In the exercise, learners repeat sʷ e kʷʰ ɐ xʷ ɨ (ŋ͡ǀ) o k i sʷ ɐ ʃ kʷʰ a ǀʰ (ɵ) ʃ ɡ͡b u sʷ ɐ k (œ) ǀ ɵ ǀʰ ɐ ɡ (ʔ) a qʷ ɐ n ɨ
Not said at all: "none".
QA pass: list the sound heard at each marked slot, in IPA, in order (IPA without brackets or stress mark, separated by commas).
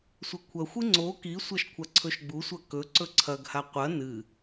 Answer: ŋ͡ǀ, ɵ, ɵ, h